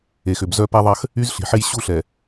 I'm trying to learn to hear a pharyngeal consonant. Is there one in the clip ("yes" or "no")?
yes